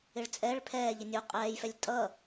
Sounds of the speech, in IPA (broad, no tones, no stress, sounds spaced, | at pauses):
ɪ ɭ t͡sʼ ɛ ɭ pʰ ɛː ʎ ə nʲ u qʼ ɛː j f ɛ lʲ tʼ ʌ